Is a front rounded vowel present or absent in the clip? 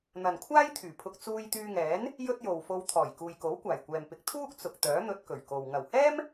present